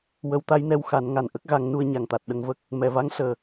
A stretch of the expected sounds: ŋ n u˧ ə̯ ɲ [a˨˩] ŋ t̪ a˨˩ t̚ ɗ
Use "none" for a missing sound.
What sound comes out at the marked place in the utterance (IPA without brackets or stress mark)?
a˨˩